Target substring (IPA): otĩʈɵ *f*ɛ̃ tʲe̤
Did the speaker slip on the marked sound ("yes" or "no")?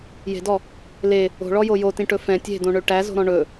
no